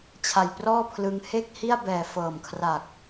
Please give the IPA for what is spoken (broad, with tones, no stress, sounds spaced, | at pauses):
t͡ɕʰ a˨˩ j p r ɔː˥˩ pʰ l ɯ˧ ŋ h e˥˩ k̚ h i˥˩ a̯ b ɛː˨˩ f ɤː˨˩ m kʰ r a˨˩ k̚